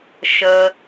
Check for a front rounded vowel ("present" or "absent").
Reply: absent